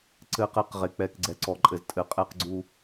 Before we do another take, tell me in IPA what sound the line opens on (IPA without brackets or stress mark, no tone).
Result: ǀ